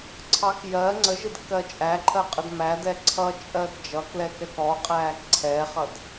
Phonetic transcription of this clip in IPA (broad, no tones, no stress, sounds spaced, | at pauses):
ǀʰ ɑ k j ɜ ŋ͡ǀ ə ʒ ɪ d kː ɜ t͡ʃʼ æ ǃʰ ɜ qʼ ə d m æ d ɛ ǀʰ ʌ t͡ʃʼ ɜ d d͡ʒ ʌ k l ɛ k ɛ k ɔ qʼ æː k ǀʰ ɛ χ ʌ d